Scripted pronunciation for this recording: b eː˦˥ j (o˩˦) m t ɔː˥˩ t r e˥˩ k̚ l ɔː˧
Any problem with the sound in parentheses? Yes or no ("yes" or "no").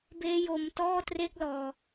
yes